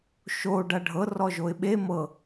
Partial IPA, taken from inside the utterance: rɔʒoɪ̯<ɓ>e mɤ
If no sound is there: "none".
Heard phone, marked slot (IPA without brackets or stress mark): ɓ